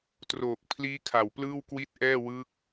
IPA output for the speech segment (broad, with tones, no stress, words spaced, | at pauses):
troː˨˩k̚pʰliː˦˥kʰa˨˩w plɯː˥˩wkwi˥˩t̚ʔɛː˥˩ wɯ˦˥k̚